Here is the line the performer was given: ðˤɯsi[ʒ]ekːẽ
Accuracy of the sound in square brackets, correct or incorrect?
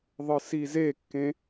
incorrect